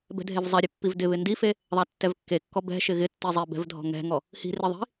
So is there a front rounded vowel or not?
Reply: no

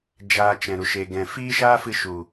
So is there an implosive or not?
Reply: no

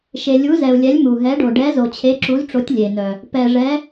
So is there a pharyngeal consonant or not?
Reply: no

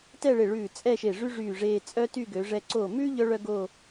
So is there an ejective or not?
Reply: yes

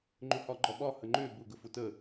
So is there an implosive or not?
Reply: yes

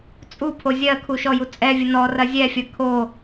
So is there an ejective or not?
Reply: yes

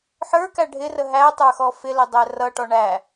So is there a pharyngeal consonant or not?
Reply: yes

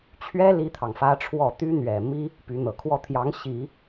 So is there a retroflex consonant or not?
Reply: yes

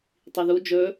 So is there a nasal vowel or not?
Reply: no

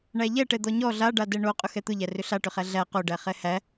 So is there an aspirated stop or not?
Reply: no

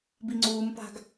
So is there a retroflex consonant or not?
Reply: no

